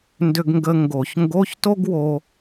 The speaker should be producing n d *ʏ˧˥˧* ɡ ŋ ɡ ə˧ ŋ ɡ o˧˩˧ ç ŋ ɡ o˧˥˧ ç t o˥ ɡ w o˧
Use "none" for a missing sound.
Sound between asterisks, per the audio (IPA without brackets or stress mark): ʏ˧